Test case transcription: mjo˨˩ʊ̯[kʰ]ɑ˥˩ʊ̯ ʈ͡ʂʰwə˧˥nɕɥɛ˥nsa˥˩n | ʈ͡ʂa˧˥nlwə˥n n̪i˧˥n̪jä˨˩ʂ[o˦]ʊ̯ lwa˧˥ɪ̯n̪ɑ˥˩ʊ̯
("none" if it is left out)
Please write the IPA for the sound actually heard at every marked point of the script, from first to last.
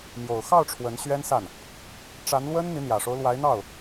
x, o˦

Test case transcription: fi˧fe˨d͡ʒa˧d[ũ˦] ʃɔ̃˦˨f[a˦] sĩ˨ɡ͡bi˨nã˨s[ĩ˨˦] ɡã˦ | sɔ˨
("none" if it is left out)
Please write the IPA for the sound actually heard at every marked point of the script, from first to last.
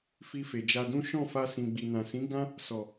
ũ˦, a˧, ĩ˨˦

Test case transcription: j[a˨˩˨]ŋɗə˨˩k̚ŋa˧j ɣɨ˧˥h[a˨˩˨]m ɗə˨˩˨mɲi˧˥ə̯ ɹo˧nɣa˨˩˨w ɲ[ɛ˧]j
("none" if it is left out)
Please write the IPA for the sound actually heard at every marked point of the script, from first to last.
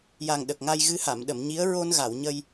a˨˩, a˨˩˨, ə˧

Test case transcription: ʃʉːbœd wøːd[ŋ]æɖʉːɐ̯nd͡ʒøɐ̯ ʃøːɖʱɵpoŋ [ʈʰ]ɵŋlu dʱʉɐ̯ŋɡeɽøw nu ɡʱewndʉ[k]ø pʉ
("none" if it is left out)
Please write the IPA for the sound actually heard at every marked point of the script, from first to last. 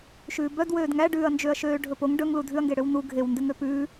ŋ, ɖ, ŋ

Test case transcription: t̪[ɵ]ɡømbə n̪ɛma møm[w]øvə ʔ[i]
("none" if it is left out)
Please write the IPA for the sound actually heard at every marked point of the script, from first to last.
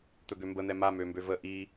ɵ, b, i

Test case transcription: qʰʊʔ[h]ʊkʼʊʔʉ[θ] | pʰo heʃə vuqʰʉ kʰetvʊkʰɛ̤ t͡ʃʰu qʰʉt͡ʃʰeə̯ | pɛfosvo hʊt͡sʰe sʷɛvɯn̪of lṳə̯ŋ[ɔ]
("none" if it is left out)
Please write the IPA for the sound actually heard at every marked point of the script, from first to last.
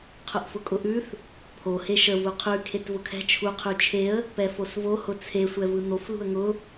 f, θ, ʊ

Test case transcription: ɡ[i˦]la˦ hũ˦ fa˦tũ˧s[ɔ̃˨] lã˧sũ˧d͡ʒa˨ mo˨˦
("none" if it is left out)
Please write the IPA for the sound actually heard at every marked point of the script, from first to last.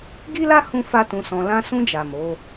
i˦, ɔ̃˧

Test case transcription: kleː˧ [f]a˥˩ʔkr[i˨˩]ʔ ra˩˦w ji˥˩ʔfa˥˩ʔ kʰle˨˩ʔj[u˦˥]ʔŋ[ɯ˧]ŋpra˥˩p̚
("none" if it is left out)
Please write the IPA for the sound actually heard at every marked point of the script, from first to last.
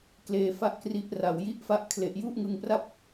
f, i˦˥, u˥˩, ɯ˧

